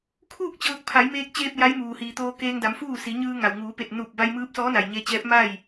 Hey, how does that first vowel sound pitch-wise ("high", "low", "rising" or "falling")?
falling